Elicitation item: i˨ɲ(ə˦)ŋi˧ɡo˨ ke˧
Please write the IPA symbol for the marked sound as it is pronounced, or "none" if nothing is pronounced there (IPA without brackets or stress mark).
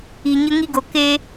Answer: ə˧